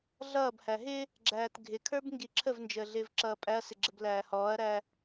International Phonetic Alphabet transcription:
ɮʌːbhæ ɦɪ | ɡ͡ǁæːtɡʱɪkʰə˞b ŋɡiǁʰəvnd͡ʒəː ɮɪːvǁʌːpʼæɐ̯sɪ ɡ͡ǁəblæːhɔːɐ̯ɾæ

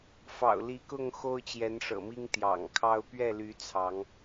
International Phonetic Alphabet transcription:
fɑ̰˨˩ʊ̯li˨˦kʊ˥˨ŋ xo˦ʊ̯t͡ɕjɛ˨˦nʂɤ̰˨˩mi˦ŋ t̪jɑ̰˨˩ŋkʰɑ˦ʊ̯ pɥɛ˥˨ly˨˦ t͡sʰɑ˨˦ŋ

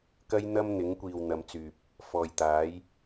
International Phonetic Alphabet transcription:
kɐ˥jn̪ɐ˥mn̪ɪ˨˥ŋkʷiː˨w n̪ɐ˨˧mt͡syː˨p̚ | fɔː˨jt̪aː˨˥j

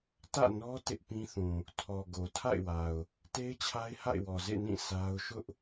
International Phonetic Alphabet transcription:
tä̰˦˨nɔ˦ tɪ˦ʔpĩ˦θũ˨ | tʰɔ˨ɡo˨tʰa̰˦˨ɪ̯wa˨ʊ̯ | te˦ɪ̯t͡ɕʰa˦ɪ̯ha̰˦˨ɪ̯wɔ˨ zḛ˦˨nĩ˦˨ sʰa˦ʊ̯ ʃʊ˦ʔ

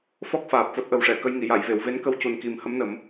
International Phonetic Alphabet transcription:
fɔ˦˥k̚faː˨˩p̚ fo˦˥t̚ʔə˨˩˦wʂɛ˨˩˨kə˧j ŋi˨˩˨ja˨˩˨jve˨˩˨w ve˧˥nkə˧˥wcu˨˩n ki˨˩m hə˧˥mnə˨˩˦m

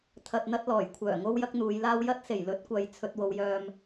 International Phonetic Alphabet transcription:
t̪ʰɐ˨t̚n̪ɐ˧t̚lɔː˨˩jkʷʰœː˨˩ ŋo˥wjɐ˥k̚n̪uː˨˧jlaː˥w jɐ˥t̚se˨˩jlɵ˨˥t̚kʷɐ˨j t͡sʰɵ˧t̚wo˨˧wjœː˧m

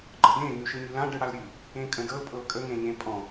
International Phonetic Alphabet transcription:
ɡ͡ǃədẽ ŋʉʃɯɲʉlã ɖɯɽalɾʲʉ | ẽkʼə̃dɤl pʼɤkʼə ŋẽɲẽpʼɔ̃

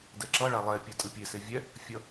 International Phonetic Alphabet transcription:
dɛǁʌ ɭalˠɛ pʲɛtʼɯpʲe sevʲɛ | fʲʌ

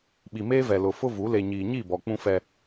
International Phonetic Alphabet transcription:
ɓi˨meː˦vɛ˨lʊ˨ fʊ˦vu˨˦ le˨ɲiː˨ɲi˦˨ bɔ˨k͡pũ˦fɛ˦

